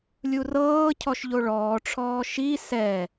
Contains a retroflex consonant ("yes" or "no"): yes